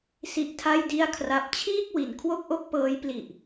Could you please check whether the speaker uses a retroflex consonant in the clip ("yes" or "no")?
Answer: no